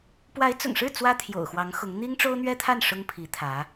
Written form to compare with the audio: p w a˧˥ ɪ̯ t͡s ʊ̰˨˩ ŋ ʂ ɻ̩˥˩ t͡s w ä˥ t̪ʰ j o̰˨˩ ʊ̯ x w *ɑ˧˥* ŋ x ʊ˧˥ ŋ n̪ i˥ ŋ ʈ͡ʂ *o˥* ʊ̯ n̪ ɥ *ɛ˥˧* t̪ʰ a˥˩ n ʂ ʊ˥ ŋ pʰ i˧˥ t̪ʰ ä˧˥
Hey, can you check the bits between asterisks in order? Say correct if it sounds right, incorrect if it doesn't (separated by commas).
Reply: correct, correct, incorrect